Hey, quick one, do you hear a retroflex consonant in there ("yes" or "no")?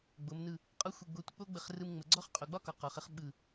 no